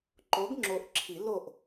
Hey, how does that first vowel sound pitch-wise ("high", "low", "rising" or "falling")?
rising